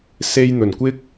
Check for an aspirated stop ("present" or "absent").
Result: absent